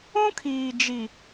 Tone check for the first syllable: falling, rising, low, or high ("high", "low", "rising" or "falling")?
high